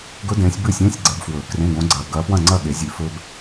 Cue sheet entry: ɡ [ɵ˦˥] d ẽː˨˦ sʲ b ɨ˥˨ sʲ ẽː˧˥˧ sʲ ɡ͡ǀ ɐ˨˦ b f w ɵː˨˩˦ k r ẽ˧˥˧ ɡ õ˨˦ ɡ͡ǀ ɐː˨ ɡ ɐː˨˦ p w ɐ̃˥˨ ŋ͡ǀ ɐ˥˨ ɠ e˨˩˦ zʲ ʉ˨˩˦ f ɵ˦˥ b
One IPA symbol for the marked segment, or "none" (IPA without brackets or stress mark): ɵ˦˥